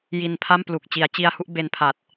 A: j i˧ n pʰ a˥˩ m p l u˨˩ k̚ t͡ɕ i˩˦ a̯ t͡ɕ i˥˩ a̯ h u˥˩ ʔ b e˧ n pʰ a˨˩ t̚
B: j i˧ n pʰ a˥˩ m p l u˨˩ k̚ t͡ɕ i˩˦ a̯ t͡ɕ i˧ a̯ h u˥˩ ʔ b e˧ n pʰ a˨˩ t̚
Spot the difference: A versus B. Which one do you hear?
B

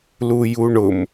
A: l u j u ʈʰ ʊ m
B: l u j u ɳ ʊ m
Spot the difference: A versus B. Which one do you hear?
B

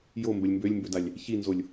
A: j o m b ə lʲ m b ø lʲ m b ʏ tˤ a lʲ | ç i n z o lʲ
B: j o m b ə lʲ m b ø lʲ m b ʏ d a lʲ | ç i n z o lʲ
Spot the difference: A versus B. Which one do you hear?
B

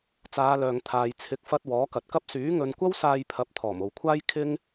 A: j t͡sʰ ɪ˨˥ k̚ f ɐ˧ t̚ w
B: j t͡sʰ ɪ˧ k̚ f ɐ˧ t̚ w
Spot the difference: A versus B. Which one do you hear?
A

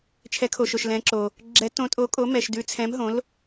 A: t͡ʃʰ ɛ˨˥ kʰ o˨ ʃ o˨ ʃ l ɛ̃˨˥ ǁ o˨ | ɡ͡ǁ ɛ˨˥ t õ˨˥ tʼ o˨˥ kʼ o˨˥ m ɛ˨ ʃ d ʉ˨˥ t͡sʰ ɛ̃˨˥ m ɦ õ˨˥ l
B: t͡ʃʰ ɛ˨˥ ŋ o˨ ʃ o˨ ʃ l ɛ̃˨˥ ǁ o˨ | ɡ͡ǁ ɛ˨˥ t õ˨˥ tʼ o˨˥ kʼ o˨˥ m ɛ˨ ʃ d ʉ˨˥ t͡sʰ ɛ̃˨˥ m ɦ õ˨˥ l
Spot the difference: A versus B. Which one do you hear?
A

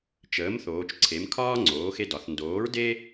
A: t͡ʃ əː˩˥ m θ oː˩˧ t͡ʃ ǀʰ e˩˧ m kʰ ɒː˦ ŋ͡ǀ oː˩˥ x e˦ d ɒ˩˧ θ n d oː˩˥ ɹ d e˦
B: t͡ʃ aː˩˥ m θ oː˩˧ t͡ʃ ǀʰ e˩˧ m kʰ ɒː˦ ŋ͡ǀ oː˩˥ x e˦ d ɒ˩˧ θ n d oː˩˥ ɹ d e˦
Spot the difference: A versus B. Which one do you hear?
A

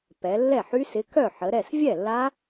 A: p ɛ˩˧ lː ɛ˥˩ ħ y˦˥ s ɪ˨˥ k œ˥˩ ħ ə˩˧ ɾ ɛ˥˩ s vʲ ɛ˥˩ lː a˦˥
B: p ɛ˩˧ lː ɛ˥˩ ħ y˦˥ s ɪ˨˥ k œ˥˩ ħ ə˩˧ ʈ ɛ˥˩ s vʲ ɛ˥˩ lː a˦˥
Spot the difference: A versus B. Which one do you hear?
A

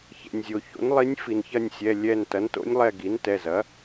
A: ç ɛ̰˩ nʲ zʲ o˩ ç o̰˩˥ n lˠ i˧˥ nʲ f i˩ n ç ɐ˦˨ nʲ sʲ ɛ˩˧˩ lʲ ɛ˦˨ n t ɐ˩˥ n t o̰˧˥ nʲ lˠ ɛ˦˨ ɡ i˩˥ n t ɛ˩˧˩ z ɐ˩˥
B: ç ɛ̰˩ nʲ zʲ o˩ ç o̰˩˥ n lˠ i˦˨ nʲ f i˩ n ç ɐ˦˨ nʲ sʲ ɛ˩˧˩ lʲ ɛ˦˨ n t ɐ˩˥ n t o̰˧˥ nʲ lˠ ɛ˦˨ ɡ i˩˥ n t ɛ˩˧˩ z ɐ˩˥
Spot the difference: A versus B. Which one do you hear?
A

